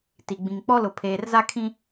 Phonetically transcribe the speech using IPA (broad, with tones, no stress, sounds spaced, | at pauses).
t i˨ ɡ͡b ĩ˨ ŋ k͡p ɔ˦ l ʊ˨ pʰ eː˨ r z a˦ kʰ ĩ˦